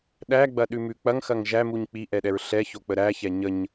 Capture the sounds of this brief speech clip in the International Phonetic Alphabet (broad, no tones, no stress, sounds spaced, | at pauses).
ɗ æ ɡ͡b ɐ ɗ ʉ m ʉ k͡p ɐ ŋ x ɐ ŋ ʒ æ m u ɲ k͡p i ʔ ɛ ɗ ɛ ɹ ɬ ɛ ç o k͡p ə ɾ æ ç ɛ ɲ ə ɲ